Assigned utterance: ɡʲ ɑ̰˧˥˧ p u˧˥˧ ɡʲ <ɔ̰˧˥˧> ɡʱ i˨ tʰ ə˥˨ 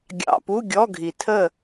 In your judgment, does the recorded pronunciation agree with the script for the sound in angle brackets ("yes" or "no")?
no